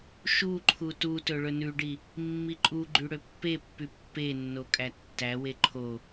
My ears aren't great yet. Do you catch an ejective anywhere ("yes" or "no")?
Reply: yes